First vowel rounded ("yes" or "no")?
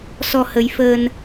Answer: yes